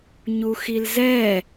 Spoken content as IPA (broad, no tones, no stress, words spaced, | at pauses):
ɲuxilzɛ